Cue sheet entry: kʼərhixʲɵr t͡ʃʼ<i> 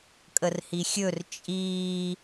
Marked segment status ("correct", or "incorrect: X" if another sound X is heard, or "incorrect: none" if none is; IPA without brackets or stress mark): incorrect: iː